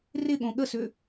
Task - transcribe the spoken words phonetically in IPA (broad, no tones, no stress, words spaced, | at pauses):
rɪɠõ ɠəsʏ